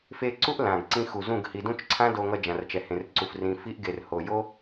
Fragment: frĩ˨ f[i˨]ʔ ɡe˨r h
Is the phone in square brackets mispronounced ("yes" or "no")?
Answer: yes